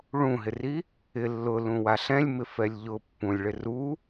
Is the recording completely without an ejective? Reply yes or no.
yes